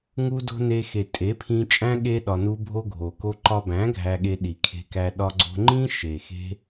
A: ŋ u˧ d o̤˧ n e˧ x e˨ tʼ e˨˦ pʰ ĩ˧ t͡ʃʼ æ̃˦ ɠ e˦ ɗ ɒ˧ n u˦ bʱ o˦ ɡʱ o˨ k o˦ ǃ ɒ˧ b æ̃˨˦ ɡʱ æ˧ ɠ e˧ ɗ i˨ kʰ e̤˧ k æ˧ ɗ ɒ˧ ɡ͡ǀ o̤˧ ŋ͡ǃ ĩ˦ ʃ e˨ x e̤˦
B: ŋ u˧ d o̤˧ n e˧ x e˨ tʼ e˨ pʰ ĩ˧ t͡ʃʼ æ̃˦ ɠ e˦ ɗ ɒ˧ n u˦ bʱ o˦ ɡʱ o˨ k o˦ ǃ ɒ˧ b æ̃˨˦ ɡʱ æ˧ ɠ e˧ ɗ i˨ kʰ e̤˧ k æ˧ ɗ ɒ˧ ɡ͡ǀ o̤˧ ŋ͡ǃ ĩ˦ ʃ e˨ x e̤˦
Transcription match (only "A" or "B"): A